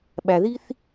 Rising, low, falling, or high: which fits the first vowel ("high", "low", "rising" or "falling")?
low